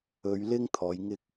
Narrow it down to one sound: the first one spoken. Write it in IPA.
ɵ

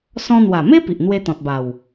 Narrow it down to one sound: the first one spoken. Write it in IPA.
s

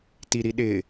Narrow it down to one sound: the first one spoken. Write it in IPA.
t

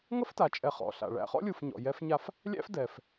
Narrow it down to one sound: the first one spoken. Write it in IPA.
ŋ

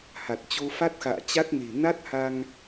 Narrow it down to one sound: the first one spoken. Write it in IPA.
h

